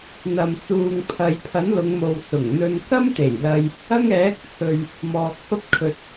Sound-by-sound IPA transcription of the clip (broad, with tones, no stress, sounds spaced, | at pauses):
n̪ ɐ˨ m t͡s uː˨ ŋ pʰ ɐ˨˧ j pʰ ɐ˨˥ n l ʊ˨˧ ŋ m o˨ w s ʊ˨˩ ŋ n̪ ɵ˧ n k ɐ˥ m t̪ e˨˩ j l ɐ˧ j | ɐ˥ ŋ ɛː˨˥ k̚ t͡sʰ ɵ˨ ɥ | m ɔː˨ k̚ f ɐ˥ p̚ kʰ ɵ˧ t̚